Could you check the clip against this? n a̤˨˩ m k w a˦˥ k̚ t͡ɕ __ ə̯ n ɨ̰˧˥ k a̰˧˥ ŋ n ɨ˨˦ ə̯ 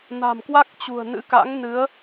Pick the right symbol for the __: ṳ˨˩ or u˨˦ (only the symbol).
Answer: ṳ˨˩